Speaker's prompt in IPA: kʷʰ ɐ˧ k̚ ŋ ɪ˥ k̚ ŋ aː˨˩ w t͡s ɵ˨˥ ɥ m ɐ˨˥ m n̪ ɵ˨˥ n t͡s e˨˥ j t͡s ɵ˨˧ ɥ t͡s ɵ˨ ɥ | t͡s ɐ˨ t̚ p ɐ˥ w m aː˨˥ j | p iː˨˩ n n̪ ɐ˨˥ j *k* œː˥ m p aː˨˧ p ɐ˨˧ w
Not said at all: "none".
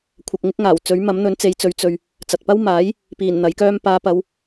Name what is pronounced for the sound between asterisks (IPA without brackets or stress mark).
k